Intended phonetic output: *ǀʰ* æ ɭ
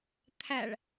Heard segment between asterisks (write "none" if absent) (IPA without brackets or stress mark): t̪ʰ